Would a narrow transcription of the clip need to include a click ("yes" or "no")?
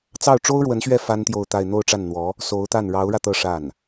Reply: no